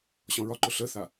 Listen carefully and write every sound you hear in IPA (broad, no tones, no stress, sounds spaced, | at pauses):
ɕ ɔ̃ ɹ ɒ ǃ ʊ ɬ ə θ a